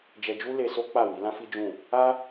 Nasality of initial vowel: oral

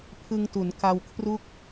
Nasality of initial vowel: oral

